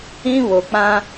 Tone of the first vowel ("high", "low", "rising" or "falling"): high